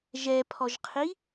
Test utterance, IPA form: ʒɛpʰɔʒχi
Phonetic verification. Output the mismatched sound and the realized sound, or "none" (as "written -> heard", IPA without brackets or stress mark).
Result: χ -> qʰ